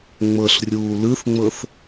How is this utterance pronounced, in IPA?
ŋ͡m ɤ ɬ rʲ uː l ɯ θ ŋ͡m ɤ θ

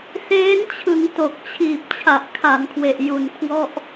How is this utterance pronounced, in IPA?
s eː˦˥ n t͡ɕʰ ɯ˩˦ ŋ t o˨˩ k̚ t͡ɕʰ iː˨˩ p̚ t͡ɕʰ a˨˩ ʔ kʰ a˩˦ n kʰ w e˨˩ ʔ j u˨˩ n kʰ w ɔ˥˩ ʔ

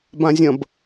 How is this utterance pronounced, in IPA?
b ã zʲ ɐ̃ b

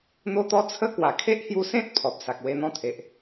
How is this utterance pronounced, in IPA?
n̪ o˦ t̪ ɔ˦ t͡sʰ ə˦ k w a˨˩ kʰ e˦ ʔ h j u˧ s ẽ˦ t̚ pʰ ɔ˨ p̚ s a˨ k̚ w e˧ n̪ ɔ̃˥˧ t̪ʰ e˨ ʔ

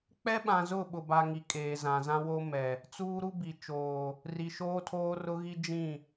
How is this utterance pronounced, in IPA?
k͡p ɛ˦ ɓ ã˨ z ʊ˦˨ ɓ ʊ˨ b a˨ ŋ i˨ kʼ eː˨ z ã˨ z ã˦ w o˦ m ɛ˨ | t͡s uː˦ ɾ u˦ b i˨ t͡ʃ oː˨ | r i˨ ʃ oː˦ tʰ oː˦ r ʊ˦ ɣ i˦ d͡ʒ ĩ˦˨

